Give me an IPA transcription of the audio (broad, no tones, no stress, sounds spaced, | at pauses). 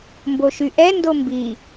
m b o ʃ y ʔ ɛ n d o m b i